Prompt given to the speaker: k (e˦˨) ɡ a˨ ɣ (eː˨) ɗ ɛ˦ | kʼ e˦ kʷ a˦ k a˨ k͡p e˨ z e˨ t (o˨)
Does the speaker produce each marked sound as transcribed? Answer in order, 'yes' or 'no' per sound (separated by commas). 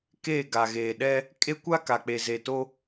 yes, yes, no